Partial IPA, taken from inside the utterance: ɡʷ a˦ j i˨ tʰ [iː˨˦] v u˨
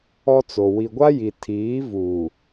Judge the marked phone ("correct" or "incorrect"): correct